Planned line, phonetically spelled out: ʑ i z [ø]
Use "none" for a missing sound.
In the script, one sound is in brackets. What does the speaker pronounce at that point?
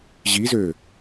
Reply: ø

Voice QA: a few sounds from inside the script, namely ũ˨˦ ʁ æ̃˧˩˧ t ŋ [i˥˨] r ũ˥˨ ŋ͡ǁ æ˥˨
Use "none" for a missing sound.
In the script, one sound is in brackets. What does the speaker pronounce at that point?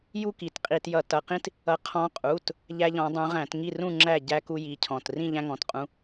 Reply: i˥˨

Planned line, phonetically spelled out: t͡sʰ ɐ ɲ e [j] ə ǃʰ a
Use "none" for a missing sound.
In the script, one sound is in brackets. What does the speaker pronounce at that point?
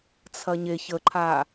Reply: ç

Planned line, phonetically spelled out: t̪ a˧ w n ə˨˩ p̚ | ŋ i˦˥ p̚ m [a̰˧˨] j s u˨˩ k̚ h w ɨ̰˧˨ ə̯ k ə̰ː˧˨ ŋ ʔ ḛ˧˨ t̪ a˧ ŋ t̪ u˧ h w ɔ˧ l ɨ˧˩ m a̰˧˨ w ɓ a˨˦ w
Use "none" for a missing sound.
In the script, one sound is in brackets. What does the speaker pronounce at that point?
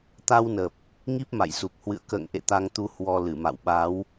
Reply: a̰˧˨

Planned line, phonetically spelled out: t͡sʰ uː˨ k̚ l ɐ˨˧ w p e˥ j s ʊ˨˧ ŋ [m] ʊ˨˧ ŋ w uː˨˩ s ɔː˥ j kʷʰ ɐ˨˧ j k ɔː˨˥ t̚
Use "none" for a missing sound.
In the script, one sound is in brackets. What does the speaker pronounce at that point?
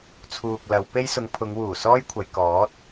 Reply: pʰ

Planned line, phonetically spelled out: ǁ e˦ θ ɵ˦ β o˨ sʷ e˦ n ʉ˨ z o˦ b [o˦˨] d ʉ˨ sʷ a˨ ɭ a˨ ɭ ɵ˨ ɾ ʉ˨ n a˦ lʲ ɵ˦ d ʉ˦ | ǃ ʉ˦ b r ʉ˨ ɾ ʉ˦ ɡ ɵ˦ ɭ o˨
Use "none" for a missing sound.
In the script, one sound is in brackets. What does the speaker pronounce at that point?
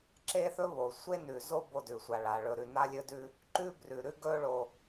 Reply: o˦˨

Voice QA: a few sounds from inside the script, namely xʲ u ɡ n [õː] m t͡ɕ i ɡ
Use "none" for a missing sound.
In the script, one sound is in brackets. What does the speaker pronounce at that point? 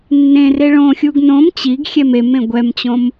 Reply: õ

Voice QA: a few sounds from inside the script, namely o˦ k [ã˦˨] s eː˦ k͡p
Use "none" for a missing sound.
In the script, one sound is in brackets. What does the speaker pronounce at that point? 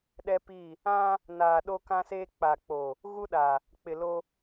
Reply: ã˦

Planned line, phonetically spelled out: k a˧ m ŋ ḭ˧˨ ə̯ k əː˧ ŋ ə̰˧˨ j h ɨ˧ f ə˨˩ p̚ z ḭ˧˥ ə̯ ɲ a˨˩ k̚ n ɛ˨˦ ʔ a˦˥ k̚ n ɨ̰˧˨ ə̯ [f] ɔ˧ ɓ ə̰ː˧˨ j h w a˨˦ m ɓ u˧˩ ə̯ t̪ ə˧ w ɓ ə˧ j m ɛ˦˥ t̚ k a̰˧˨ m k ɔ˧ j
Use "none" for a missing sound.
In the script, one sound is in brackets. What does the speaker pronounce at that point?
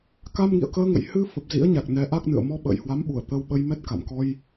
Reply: m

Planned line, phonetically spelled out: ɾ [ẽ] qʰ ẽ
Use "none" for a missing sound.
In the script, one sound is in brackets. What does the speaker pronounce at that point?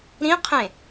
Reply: ĩ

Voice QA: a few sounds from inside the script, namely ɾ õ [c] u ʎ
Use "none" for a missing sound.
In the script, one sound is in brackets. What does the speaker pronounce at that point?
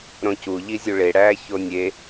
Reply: c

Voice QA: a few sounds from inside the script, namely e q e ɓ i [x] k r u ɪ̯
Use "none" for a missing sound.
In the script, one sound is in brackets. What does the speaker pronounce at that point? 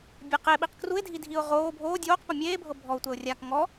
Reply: q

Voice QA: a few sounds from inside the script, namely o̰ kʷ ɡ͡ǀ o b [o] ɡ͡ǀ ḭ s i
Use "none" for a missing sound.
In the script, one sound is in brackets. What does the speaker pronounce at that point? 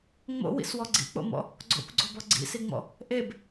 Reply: ɔ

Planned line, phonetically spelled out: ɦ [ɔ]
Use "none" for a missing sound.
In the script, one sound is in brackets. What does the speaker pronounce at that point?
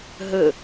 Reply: ə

